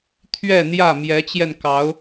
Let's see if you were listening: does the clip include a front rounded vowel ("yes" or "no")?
no